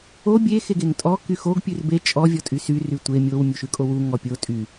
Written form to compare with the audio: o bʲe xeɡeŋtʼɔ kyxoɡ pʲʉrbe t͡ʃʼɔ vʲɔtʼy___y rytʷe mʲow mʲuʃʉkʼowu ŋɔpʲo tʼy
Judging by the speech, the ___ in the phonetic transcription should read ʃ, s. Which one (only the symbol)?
s